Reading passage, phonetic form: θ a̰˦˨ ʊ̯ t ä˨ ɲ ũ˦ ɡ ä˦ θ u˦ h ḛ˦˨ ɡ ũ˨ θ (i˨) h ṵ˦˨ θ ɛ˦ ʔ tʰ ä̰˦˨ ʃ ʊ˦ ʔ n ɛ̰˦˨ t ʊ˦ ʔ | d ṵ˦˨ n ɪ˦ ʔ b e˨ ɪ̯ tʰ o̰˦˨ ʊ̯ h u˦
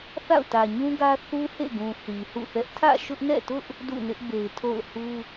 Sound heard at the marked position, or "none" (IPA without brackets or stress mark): i˨